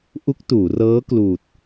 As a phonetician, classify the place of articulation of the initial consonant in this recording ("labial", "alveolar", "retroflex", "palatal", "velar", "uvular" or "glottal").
glottal